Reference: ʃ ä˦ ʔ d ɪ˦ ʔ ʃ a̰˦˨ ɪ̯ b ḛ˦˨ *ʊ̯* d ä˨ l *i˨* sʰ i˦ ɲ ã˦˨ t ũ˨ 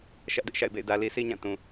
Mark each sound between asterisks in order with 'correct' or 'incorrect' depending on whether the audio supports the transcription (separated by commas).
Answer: incorrect, correct